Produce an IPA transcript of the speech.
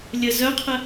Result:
lʲ ə z œ qʰ ə

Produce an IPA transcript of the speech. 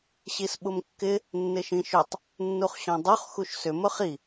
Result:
ɕ i s ɓ ʊ m kː ɪ | nː ɪ ʃ ĩ ʃ ʏ tˤ | nː u χ ɕ ɔ̃ dˤ u χ x u ʃ s ʏ m ʊ χ i

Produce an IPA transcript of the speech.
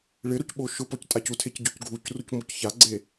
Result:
ɭ ɪ ɾ o c ɓ o ʃ ʊ p ɔ c tʼ a c u tʰ e c ɟ o c ɡʱ u c r u c m o c ç a ɡ͡ǀ e

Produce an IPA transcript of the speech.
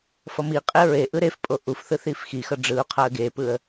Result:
f ʌ m i qʼ e ɹ e ʔ ɯ ɾ e f pʼ o ʔ u f θ ɯ θ i f x i x ʌ ɖ͡ʐ ɯ ʊ̯ qʰ a ə̯ ɡ e p ɯ ə̯

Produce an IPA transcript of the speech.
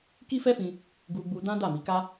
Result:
k i˦ f ɛ˦ f ĩ˧ | ɡ u˧ ɡ͡b u˧ d ã˦ d a˦˨ m i˨˦ k a˦

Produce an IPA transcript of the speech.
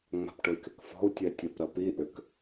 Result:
ŋ͡m a̤ p ʈ ʊ i̯ k ɪ k f ɔ̤ u̯ tʲ ɛ tʲ ɐ p ɾ ɐ p i ʔ ʏ k

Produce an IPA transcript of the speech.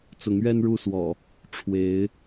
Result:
t͡s ʊ˨˦ ŋ ɥ ɛ˦ n ɻ u˥˨ s w ɔ̰˨˩ | ʈ͡ʂʰ w e˨˦ ɪ̯

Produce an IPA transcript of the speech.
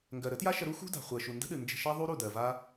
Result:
ŋ ɡ ɜ˨ ɾ ə˨˦ t j a˦ ʃ ə˧ ɾ u˦ x ṳ˦ d a̤˨ χʷ ɜ˨ ʃ u˨ n d ə̤˦ ɗ ɨ˨ n d͡ʒ ə̤˧ ʃ a˦ ðˤ u˦ ɾ u˦˨ d ɜ˨ v a˦

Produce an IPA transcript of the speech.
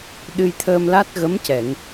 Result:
ɗ ɨ˧ j t̪ʰ əː˧ m l a˦˥ t̚ ɣ ə˧˥ m c ɛ˨˩˨ ŋ

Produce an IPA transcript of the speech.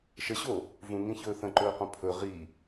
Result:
ʃ ə ɕ o | v ũ ŋ ĩ ç ɵː θ ə̃ ǃ ɵː q õ pʰ ɵ ʁ i

